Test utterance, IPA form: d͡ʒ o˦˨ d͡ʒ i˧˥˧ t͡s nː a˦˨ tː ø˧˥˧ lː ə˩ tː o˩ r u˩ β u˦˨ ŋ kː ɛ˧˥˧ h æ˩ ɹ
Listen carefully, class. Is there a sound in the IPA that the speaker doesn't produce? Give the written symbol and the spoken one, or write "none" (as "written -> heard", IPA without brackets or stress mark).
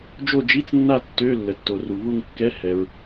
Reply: æ˩ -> ɛ˩